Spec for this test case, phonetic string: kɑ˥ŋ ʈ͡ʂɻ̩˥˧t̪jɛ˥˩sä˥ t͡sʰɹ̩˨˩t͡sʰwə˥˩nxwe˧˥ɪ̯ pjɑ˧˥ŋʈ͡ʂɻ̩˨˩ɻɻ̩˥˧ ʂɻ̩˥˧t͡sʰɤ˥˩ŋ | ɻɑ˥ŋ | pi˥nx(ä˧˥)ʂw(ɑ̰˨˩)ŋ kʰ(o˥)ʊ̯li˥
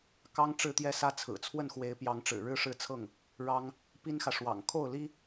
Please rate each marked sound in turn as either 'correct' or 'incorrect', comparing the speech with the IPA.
incorrect: ä˨, correct, incorrect: o˥˩

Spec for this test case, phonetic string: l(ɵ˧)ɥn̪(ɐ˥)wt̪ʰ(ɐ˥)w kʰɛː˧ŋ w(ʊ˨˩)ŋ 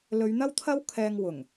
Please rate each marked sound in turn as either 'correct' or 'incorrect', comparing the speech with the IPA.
incorrect: ɵ˨˧, correct, correct, correct

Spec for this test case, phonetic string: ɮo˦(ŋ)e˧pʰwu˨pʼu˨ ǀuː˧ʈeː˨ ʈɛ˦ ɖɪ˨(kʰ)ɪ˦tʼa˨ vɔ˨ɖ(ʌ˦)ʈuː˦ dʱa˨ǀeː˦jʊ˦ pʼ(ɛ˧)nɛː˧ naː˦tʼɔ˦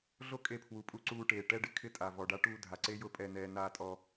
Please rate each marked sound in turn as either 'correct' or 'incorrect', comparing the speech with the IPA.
incorrect: kʼ, correct, incorrect: a˦, correct

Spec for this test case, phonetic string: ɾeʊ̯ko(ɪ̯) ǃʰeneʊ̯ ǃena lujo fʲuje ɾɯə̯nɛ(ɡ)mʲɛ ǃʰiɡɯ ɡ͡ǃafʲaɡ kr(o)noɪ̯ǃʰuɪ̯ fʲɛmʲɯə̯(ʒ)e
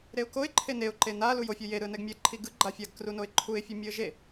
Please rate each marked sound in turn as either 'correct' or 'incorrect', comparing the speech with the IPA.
correct, correct, incorrect: u, correct

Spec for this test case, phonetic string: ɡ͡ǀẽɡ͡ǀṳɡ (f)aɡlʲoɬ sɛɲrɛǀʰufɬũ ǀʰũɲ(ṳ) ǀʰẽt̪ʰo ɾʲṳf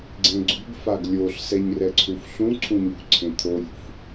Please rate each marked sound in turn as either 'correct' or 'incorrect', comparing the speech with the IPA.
correct, correct

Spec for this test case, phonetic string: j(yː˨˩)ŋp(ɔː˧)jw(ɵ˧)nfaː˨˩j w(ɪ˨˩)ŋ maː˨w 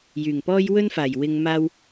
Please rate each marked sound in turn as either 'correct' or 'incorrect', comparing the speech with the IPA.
correct, incorrect: ɔː˥, incorrect: ɵ˥, incorrect: ɪ˨

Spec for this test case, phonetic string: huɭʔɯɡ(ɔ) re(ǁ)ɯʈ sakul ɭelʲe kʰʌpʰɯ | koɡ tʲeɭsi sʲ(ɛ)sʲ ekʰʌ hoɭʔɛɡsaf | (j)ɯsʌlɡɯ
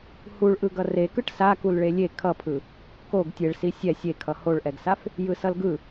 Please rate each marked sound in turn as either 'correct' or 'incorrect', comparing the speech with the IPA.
incorrect: ʌ, incorrect: k, correct, correct

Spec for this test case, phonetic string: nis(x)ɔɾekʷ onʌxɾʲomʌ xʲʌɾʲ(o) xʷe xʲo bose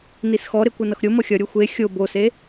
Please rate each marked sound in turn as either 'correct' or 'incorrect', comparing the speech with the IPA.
correct, correct

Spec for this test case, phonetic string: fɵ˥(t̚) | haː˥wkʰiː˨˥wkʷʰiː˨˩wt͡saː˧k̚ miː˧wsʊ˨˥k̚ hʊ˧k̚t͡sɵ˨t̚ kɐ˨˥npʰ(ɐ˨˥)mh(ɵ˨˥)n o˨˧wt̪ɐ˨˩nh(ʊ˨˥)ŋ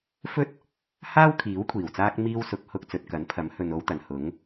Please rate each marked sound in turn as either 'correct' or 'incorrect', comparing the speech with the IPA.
correct, correct, incorrect: ɵ˨, correct

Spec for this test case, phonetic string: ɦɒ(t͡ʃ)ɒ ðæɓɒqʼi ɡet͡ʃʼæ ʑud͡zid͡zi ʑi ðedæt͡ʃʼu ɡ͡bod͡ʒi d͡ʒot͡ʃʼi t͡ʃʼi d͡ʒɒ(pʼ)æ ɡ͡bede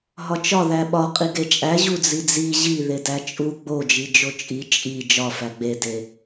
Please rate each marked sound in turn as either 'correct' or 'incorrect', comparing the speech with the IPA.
correct, incorrect: f

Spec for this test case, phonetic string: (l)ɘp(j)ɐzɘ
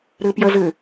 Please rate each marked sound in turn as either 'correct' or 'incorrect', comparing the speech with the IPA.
incorrect: ɾ, correct

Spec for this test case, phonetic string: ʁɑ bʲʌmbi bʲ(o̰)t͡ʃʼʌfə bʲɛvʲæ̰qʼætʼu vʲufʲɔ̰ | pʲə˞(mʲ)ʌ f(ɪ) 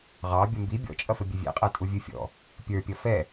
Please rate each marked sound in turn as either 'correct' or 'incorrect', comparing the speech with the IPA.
incorrect: ɔ̰, incorrect: pʲ, incorrect: ɛ

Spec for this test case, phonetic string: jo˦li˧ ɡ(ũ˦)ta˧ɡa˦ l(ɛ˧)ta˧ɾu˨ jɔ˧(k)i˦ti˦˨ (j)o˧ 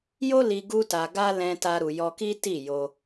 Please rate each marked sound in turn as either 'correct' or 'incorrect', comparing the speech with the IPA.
incorrect: u˦, incorrect: ɛ̃˧, correct, correct

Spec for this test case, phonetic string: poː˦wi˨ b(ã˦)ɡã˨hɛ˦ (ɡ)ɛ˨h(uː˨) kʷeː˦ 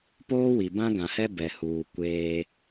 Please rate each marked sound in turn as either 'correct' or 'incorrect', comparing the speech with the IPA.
correct, incorrect: b, correct

